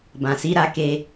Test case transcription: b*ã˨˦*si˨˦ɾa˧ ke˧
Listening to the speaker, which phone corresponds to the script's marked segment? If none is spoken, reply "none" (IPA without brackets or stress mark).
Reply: ã˨